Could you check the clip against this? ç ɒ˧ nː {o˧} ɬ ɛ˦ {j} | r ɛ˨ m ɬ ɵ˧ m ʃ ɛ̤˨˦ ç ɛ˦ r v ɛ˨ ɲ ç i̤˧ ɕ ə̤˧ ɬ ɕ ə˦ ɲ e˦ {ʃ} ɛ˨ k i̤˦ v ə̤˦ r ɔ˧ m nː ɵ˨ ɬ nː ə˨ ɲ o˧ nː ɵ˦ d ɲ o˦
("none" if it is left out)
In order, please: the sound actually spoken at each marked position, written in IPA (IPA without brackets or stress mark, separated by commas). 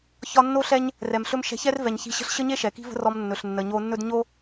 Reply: o˦, ɲ, ʃ